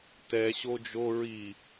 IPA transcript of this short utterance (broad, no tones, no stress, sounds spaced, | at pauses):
t ɛ ɕ o d͡ʒ o ɹ i